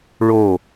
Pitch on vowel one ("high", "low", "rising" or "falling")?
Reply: falling